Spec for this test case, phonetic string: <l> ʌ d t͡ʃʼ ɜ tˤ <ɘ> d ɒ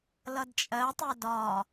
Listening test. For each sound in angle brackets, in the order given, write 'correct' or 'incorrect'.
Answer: correct, incorrect: ɛ

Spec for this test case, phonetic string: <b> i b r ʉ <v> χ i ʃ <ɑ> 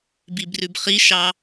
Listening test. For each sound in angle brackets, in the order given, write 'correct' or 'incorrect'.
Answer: correct, incorrect: b, correct

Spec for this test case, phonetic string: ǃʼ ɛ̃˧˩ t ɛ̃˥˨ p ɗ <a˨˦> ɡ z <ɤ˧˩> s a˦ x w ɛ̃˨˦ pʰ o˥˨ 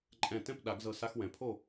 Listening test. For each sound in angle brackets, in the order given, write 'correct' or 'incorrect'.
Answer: incorrect: a˨˩˦, correct

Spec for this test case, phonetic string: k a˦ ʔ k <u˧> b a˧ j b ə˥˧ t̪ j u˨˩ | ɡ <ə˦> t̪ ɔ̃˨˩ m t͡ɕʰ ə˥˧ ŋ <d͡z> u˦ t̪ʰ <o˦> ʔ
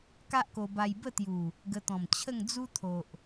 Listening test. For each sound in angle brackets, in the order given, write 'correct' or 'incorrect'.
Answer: incorrect: o˧, incorrect: ə˧, correct, incorrect: o˨

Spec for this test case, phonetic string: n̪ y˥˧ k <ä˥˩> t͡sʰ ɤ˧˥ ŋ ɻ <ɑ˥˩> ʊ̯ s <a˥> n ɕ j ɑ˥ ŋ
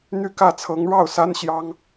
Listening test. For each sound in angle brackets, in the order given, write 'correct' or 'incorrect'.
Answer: correct, correct, correct

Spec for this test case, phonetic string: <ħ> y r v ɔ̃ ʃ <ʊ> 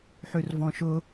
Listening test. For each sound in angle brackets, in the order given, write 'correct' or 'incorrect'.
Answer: correct, correct

